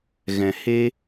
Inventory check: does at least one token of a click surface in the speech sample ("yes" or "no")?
no